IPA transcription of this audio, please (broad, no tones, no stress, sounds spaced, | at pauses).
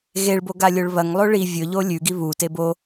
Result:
ɣ e ɭ b o ɡ a lʲ o ɭ β ɐ ŋ lˠ o ɭ i vʲ ɵ ʎ o lʲ ʉ ɡ i β u t e b o